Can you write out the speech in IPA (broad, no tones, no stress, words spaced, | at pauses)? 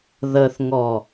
ðəθŋɔ